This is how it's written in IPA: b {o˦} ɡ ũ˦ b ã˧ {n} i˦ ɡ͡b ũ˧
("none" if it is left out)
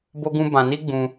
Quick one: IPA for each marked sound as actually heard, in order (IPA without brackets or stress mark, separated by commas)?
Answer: o˦, n